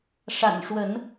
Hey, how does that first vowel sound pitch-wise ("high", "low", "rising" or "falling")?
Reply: low